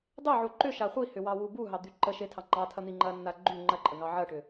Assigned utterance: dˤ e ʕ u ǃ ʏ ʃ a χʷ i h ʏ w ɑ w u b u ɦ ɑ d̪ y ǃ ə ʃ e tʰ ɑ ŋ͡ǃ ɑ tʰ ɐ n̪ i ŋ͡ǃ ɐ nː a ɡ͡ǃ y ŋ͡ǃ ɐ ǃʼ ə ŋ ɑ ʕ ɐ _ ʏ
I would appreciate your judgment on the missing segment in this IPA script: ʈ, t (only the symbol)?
ʈ